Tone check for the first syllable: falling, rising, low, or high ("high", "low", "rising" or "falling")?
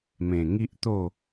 low